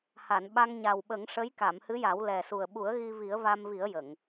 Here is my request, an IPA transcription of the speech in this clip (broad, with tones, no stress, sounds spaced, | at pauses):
h a˨˩˨ n ɓ a˧ ŋ ɲ a˨˩ w ɓ ə˨˩˦ ŋ ʂ ə˧˥ j k a˨˩˨ m h ɨ˧˥ j a˨˩˦ w l ɛ˨˩ s u˨˩ ə̯ ɓ u˨˩˦ ə̯ ɣ i˧ v i˨˩˦ ə̯ v a˧ m v i˨˩˦ ə̯ j ə˨˩˨ ŋ